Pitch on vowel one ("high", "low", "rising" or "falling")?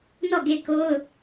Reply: falling